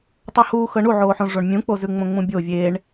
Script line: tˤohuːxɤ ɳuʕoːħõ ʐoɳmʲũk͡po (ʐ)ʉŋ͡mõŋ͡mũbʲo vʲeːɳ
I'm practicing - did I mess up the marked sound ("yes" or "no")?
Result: yes